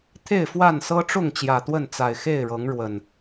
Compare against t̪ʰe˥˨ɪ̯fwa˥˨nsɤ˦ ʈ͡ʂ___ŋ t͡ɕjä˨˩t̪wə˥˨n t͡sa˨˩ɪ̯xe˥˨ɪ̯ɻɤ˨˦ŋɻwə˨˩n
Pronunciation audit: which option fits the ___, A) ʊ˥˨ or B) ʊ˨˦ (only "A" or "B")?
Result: A